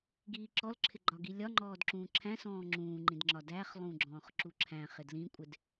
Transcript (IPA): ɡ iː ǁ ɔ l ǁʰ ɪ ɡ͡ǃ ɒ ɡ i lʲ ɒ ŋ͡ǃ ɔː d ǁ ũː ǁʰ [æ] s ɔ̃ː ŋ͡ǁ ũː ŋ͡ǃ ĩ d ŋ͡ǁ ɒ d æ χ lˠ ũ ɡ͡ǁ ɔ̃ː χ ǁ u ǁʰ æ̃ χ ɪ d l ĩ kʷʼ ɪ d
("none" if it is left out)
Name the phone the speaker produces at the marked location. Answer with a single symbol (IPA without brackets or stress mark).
æ̃